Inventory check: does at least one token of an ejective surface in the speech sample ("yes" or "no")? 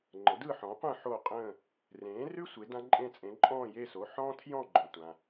yes